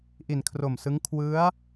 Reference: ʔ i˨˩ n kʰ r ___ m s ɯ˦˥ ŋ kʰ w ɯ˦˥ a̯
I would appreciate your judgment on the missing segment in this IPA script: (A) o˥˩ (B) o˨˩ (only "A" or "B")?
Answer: B